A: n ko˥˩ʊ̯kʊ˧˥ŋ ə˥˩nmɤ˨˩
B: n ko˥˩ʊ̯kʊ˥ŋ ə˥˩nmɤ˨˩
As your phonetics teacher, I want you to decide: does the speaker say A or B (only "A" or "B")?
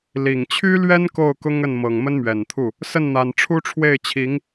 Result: B